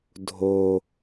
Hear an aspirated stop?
no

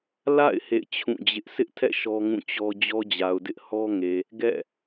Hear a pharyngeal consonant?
no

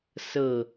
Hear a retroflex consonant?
no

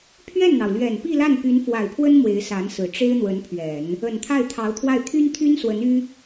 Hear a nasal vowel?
no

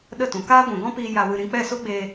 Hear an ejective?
no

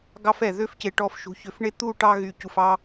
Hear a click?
no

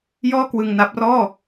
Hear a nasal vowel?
no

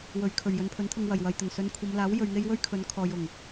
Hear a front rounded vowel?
no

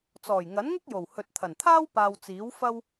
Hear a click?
no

